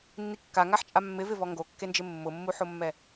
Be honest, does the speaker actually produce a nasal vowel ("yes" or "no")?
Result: no